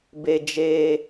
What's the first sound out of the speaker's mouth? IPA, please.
b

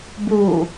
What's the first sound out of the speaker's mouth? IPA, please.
b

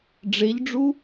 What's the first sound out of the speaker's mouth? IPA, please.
ɖ͡ʐ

